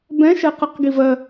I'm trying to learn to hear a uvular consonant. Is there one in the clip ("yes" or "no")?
yes